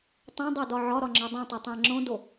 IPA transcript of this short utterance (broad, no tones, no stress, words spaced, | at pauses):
tˤõdˤodɒ ʕɒɾɒŋ͡ǁɒ dˤẽtˤotˤæ̃ ŋ͡ǁõdo